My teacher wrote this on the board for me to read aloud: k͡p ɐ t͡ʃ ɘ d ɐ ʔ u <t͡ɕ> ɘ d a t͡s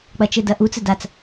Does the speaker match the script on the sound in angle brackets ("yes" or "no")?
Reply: no